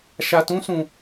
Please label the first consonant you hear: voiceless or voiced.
voiceless